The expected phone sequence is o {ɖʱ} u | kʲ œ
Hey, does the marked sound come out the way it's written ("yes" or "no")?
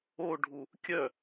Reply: yes